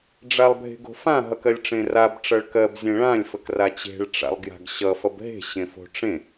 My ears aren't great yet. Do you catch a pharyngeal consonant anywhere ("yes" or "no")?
no